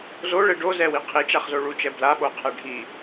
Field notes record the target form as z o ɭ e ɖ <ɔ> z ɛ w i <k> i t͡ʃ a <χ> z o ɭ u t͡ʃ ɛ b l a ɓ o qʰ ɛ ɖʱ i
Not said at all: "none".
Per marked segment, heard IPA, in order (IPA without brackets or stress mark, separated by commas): o, qʰ, χ